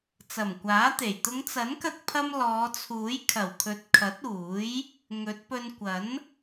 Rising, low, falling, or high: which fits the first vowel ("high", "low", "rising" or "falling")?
low